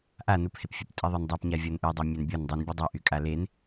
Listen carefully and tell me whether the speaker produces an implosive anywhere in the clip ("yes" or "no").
no